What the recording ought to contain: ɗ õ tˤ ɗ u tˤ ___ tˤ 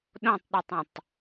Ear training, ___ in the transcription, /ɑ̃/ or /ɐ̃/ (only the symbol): ɐ̃